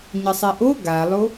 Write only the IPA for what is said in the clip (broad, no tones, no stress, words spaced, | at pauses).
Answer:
ɲɘsˤiʔo ɡalˠo